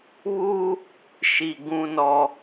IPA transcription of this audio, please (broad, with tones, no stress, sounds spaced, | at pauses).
β uː˦ | ʃ i˨ ɡ ũ˦ n ɔ˦